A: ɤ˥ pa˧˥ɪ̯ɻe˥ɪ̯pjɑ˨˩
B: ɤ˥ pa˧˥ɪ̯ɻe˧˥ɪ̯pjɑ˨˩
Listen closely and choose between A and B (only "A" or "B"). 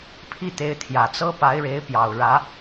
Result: B